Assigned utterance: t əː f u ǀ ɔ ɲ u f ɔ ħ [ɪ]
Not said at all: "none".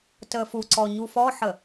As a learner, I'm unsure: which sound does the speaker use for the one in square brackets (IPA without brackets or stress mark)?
ə